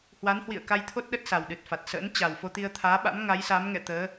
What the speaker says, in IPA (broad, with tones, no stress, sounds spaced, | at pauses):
h w a˨˦ n h w ḭ˧˨ ə̯ k a˧ j t̪ʰ o˦˥ t̚ ɗ ə˦˥ t̚ s a˨˩ w ɗ ɨ˨˩ t̚ f a˨˩ t̚ s ə̰ː˧˥ n t͡ɕ a˨˩ w f o˧ t̪ i˧ ə̯ t̪ʰ aː˨˦ ɓ a̰˧˥ m ŋ a˨˦ j s a˨˦ m ŋ ɛ̰˧˨ t̪ əː˨˦